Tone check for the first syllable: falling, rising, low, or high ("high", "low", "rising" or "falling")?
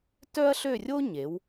high